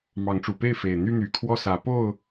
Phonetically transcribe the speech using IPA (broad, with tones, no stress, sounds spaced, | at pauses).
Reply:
m ɑ˨˦ ŋ ʈ͡ʂ u˨˩ p e˥˨ ɪ̯ f e˨˩ ɪ̯ n̪ y˦ n̪ y˨˩ kʰ w ɔ˥˨ s ä˨˦ p o˥˨ ʊ̯